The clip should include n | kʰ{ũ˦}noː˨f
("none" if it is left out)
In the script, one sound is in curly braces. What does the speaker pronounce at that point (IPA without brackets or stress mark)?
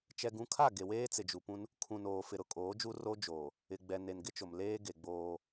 ũ˨